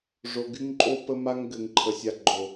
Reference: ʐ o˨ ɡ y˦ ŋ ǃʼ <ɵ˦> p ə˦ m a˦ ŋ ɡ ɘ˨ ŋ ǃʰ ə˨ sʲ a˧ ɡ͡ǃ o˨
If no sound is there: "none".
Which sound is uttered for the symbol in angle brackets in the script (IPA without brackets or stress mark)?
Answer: o˦